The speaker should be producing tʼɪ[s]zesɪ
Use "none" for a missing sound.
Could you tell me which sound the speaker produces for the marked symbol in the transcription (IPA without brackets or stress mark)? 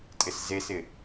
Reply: s